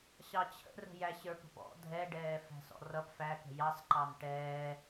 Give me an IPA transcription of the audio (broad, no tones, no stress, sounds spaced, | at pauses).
ɕ ɑ t͡ɕʰ ə̰ r ə̤ j æ ɕ ə˞ p ə̤ p ɔ̰ dʱ ɛ ɖ ɛː f æ̤ s ɔ̰ r ʌ p f æ k ə̤ j ɑ s ǃ ɑ n ʈ ɛː